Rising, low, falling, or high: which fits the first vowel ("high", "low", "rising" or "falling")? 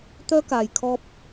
high